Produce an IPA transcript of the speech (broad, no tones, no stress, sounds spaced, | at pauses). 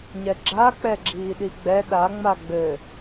ɲ ɛ ɡ͡ǁ a k͡p ɛ ɡ͡ǁ iː ɗ i ɡ͡b ɛ ɗ a ŋ͡m a ɡ͡b ɘ